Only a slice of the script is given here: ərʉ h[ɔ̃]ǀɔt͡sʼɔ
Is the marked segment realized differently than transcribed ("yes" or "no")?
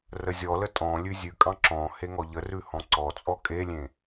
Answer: no